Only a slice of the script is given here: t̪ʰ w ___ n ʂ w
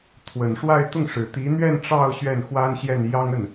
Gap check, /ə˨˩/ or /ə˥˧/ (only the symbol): ə˨˩